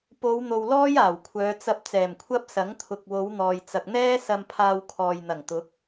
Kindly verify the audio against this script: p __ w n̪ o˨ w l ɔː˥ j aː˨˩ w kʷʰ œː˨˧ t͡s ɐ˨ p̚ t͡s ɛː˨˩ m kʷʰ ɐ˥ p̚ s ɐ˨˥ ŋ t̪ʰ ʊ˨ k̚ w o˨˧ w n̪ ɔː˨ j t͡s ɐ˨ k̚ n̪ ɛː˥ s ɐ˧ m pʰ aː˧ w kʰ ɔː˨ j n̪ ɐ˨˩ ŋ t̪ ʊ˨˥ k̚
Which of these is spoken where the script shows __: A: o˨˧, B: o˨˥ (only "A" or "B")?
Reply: A